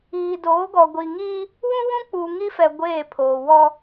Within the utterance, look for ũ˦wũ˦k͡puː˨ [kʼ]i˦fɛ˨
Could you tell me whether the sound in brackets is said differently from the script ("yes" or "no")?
yes